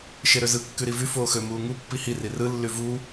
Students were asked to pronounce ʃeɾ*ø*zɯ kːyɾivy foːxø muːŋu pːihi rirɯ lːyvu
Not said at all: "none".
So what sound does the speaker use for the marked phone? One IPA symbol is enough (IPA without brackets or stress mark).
ø